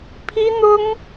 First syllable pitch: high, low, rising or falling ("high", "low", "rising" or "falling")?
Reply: high